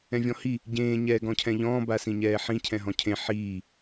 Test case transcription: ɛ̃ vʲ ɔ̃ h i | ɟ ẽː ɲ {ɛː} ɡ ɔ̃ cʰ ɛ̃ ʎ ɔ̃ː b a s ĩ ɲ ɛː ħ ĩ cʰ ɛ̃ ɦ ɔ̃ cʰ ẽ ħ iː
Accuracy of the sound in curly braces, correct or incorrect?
correct